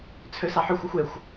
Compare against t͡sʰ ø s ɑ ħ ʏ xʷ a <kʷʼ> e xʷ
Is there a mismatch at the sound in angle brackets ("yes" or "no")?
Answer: yes